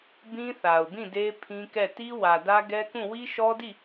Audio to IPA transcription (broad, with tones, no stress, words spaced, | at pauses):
bĩ˦θa˨ʊ̯bĩ˦˨de˦ pʰĩ˦kɛ˦˨ ti˦wä˨dä˦ ɡɛ˦kũ˦˨ wi˦ʃɔ˦di˦˨